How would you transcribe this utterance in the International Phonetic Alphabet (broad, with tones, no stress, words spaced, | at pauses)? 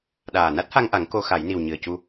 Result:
ɗaː˨˩na˦˥t̚ha˧ŋʔa˨˩˦ŋ ko˧xa˨˩˦jni˨˩w ɲɨ˨˩ə̯cu˧